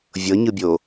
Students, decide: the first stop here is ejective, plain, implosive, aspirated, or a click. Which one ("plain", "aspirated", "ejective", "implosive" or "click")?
plain